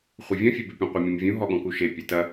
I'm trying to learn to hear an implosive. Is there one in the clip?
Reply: yes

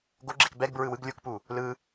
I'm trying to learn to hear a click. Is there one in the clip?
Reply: yes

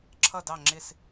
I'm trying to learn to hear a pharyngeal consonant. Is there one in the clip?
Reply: no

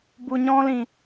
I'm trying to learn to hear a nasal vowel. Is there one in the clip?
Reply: yes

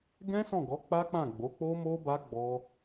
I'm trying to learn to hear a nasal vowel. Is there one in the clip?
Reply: yes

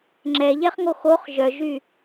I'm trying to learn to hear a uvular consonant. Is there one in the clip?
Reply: yes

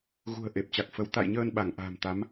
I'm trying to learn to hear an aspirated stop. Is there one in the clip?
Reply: no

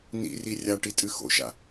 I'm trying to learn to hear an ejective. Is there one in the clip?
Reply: yes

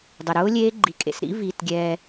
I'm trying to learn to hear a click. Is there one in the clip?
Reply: yes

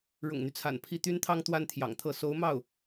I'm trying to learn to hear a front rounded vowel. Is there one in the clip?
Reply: yes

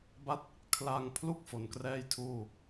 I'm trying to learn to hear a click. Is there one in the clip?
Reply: no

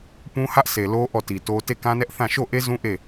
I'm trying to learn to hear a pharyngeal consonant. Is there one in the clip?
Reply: no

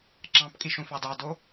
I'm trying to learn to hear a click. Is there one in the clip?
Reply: yes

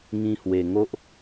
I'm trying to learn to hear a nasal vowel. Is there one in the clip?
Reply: yes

